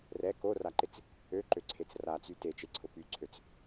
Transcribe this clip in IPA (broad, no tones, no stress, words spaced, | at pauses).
rɛ koraǃɪt͡s | øǃøǀʰet͡s rat͡sy tet͡ʃeǀʰʊ pyǀʰøt͡s